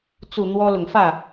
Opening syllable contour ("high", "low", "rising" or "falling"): low